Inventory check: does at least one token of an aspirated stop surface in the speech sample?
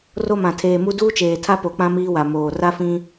yes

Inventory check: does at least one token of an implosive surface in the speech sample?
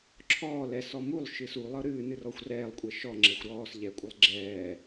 no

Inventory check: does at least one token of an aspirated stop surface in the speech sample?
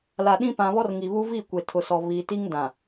yes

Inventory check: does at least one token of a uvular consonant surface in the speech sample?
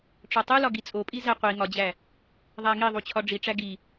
yes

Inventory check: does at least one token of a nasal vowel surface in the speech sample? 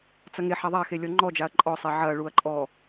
no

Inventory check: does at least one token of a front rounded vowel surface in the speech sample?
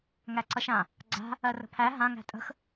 no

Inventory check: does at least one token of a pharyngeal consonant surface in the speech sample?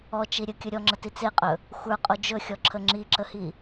no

